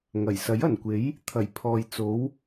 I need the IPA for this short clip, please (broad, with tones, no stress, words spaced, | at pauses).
ŋɐ˨˩jsɐ˨˥jɐ˨˩nkʷe˨˥j | t̪ʰɐ˨˩jpʰɔː˨j t͡so˨˥w